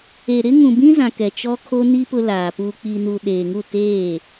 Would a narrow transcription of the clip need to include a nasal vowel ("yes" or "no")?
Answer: yes